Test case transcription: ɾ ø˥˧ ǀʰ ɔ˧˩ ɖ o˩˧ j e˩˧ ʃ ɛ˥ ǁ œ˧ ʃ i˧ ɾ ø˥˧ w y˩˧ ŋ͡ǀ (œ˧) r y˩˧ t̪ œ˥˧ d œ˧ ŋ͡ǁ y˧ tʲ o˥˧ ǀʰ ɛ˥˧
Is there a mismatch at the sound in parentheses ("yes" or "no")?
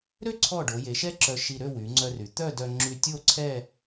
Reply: no